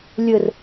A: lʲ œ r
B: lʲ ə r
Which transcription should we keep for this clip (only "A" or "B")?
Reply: B